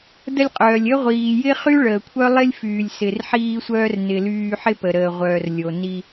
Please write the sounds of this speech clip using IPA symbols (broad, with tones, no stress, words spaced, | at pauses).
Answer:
də˧lʲqʼœː˩lʲ ə˥ ʁʷiː˩jɪ˥χy˥ ɭəː˩kʷʰœ˥lˠɪ˥lʲ fyː˩lʲsɪ˩rħiː˥sʷœː˥r nɪ˩lyː˧ ħɪ˥pə˩ɾəː˩ʁʷœː˩r lʲo˩ni˧